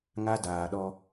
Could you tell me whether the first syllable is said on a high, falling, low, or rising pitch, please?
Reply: high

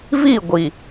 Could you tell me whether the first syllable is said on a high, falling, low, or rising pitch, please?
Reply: falling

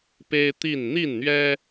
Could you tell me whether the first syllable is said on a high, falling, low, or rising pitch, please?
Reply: high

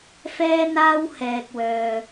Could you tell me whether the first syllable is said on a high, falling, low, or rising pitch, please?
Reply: high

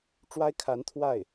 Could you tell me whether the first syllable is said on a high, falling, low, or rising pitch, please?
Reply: high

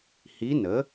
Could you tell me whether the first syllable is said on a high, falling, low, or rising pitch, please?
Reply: rising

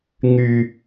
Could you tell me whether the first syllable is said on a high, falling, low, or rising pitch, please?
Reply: high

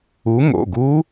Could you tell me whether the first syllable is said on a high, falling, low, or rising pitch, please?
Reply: rising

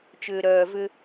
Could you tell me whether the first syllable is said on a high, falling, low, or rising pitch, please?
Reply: low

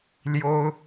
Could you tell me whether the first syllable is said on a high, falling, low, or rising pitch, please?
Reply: high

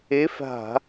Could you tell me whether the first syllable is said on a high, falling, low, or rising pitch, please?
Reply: rising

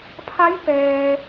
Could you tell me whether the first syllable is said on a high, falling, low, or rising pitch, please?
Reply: rising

